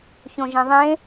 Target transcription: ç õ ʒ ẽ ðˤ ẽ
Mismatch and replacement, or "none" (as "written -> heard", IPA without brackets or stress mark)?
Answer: none